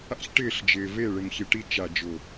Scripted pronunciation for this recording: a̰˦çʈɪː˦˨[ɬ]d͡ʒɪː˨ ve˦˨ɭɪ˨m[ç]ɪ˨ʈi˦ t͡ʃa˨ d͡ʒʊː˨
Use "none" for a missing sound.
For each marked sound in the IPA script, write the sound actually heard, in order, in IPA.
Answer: ɬ, ç

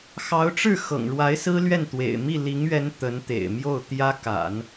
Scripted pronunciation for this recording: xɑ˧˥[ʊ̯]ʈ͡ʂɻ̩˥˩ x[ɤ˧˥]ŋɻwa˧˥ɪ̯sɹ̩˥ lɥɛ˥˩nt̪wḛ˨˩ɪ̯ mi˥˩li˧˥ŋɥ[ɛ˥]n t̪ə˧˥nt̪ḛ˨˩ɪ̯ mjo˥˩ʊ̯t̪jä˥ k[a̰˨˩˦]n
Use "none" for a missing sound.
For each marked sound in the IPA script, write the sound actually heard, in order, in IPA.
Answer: ʊ̯, ɤ̰˨˩, ɛ˧˥, a̰˨˩˦

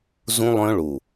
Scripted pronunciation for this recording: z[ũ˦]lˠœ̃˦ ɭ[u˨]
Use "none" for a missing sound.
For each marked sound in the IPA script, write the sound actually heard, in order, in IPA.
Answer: ũ˦, u˨

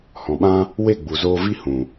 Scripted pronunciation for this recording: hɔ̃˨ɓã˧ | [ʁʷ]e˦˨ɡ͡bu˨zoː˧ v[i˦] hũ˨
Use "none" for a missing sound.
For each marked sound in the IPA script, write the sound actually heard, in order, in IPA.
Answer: w, i˦

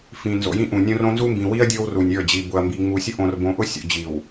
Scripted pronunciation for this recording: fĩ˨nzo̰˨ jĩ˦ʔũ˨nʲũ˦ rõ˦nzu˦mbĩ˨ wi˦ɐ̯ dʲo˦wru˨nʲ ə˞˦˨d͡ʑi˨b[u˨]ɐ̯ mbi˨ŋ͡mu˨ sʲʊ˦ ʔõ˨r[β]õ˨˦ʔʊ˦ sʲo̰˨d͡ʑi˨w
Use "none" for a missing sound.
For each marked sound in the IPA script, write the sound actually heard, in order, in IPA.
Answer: ʊ˨, b

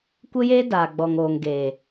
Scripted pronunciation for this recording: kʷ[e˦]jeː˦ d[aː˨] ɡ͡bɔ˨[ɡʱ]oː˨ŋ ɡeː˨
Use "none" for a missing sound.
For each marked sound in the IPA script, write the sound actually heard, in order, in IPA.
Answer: e˦, aː˨, ŋ

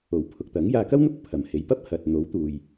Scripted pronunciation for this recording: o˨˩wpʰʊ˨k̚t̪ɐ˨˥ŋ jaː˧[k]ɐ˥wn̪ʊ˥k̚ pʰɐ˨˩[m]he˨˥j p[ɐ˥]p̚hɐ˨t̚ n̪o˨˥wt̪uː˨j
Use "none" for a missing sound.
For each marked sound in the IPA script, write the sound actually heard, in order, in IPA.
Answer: k, m, ɐ˥

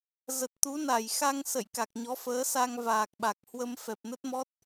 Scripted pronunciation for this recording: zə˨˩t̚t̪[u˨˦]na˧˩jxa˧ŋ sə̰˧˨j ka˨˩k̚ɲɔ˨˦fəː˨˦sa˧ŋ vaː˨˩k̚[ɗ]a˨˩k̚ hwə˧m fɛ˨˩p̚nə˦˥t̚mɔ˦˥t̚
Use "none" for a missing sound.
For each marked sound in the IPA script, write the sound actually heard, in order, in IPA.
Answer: u˨˦, ɓ

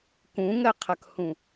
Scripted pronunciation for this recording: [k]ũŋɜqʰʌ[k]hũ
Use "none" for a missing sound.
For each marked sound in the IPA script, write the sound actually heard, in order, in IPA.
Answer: k, k

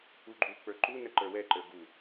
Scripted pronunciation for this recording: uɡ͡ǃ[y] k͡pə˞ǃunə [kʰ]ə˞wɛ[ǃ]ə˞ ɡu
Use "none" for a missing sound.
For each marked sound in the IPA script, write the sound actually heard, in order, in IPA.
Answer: u, ǃ, ǃ

